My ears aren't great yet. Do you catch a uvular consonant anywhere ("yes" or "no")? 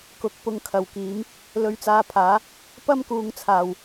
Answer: no